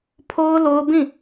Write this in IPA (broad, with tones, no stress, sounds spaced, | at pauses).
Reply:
pʰ o˦ ʊ̯ l o˦ ʊ̯ b ĩ˦˨